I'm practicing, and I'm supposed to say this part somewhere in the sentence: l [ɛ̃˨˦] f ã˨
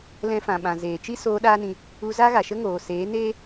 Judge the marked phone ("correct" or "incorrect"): incorrect